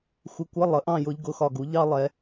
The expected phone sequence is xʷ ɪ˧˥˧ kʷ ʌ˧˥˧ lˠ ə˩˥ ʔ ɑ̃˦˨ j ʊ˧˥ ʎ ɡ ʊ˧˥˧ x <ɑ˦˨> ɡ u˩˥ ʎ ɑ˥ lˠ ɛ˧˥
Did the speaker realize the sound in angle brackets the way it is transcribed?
no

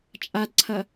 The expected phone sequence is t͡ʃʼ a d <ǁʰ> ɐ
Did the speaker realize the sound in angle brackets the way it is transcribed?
no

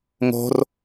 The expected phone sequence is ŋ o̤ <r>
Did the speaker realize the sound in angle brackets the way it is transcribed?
yes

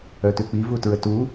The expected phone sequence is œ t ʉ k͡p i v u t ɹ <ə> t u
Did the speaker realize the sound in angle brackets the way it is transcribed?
yes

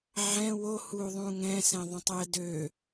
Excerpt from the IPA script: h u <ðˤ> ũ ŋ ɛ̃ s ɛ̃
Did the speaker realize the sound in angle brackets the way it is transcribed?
yes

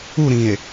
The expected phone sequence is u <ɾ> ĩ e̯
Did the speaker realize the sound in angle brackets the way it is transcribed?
yes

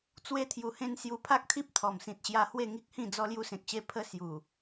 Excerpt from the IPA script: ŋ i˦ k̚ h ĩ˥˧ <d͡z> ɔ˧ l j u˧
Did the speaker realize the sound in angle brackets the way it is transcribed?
yes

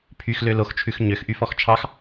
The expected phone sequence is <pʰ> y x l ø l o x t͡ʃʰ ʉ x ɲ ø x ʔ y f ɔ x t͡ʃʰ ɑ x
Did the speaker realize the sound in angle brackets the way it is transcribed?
yes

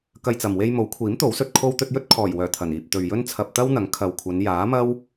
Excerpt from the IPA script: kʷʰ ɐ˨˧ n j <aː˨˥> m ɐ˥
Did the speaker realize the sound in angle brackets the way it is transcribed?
yes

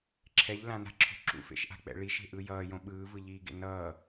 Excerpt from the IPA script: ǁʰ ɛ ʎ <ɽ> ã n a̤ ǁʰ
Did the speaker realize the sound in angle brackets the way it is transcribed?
no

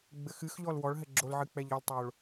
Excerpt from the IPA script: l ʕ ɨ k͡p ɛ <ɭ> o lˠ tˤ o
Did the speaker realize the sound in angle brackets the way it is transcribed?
no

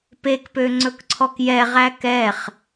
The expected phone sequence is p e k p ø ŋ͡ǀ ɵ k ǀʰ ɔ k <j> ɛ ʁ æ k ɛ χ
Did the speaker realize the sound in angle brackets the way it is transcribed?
yes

